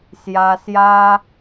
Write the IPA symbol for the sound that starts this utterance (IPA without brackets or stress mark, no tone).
s